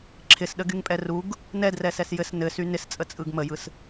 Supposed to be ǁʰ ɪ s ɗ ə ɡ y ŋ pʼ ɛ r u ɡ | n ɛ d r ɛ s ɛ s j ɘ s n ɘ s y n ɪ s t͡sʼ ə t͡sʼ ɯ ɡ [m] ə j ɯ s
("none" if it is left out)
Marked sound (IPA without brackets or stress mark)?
m